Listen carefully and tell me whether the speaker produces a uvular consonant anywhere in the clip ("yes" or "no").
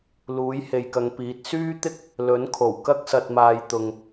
no